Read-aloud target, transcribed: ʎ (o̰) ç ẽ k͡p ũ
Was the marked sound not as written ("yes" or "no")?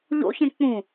no